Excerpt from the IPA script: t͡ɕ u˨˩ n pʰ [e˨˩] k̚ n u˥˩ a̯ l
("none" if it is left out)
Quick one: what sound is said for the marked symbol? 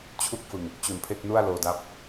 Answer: e˥˩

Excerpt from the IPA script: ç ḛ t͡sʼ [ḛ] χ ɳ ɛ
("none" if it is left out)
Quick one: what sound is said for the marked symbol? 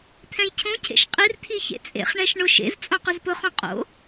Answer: ḛ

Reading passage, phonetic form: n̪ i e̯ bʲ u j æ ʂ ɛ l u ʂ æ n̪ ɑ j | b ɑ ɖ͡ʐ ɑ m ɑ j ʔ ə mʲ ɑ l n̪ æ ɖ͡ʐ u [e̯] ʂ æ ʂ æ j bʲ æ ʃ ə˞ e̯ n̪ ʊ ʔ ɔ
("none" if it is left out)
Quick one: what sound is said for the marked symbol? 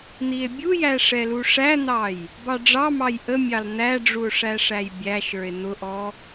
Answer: o̯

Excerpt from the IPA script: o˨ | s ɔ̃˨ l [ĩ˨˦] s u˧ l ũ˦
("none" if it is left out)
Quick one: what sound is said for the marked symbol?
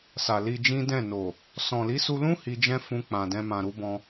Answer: i˨˦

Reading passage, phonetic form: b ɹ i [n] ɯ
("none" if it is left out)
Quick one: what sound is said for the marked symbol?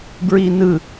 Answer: n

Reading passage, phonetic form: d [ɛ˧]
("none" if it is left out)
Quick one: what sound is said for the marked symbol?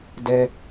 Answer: ɛ˧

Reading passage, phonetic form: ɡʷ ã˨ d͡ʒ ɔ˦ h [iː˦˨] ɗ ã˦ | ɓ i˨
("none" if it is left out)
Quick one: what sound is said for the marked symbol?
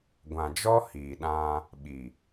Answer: iː˨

